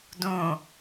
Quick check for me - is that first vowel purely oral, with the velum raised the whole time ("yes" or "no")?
no